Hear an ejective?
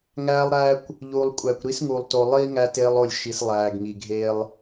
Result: yes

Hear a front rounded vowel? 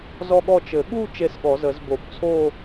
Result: no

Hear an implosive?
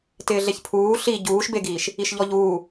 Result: no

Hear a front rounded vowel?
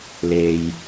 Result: no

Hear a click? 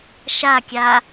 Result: no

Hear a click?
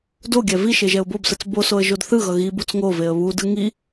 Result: no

